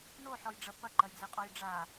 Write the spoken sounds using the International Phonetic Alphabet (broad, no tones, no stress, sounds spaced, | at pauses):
n o ħ ɔ j ɖ͡ʐ ɐ p ɐ ǃ ɐ j d͡z ɛ qʼ ɔ j ɖ͡ʐ a